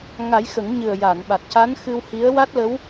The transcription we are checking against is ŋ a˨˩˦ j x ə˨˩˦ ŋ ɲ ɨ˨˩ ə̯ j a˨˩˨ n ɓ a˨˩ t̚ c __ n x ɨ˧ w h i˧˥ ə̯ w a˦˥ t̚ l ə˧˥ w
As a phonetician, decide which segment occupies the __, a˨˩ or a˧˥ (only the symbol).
a˧˥